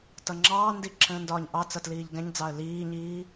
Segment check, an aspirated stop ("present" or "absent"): present